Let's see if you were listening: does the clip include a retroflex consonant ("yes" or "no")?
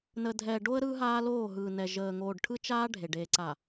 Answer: yes